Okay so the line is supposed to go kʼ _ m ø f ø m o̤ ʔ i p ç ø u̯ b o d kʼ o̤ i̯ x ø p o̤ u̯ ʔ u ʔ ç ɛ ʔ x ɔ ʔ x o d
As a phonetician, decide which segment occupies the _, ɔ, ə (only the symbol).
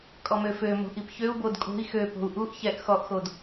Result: ɔ